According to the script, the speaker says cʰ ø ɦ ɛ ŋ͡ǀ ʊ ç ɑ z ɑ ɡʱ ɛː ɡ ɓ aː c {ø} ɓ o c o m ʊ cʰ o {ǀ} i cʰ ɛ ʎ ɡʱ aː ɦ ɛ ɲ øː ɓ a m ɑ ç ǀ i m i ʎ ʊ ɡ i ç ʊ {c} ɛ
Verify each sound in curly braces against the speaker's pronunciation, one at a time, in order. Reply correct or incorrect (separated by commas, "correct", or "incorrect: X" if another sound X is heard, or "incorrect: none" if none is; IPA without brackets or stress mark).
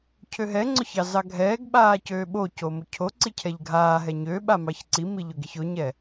incorrect: øː, correct, incorrect: ɲ